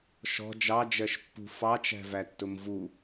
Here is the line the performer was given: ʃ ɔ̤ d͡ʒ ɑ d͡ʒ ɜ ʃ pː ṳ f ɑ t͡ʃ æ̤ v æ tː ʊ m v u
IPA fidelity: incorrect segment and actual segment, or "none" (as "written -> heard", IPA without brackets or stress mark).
none